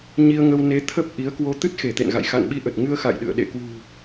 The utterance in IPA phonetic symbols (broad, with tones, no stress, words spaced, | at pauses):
ɲi˧ə̯ŋə˧w ne˨˦ t̪ʰə˦˥p̚ ʔi˨˦ə̯kwo˧ t̪ɨ˦˥t̚xe˧˩t̪ḛ˧˨nɣa̰˧˨j xa̰˧˨nɓi˧ʔə˨˩t̚ ŋɨ˧ə̯xa̰˧˨jɗɨ̰˧˨ə̯ ɗḛ˧˨kwṳ˨˩